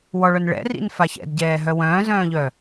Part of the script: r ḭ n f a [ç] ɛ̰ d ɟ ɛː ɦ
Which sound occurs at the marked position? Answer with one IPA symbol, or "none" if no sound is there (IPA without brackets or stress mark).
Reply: ç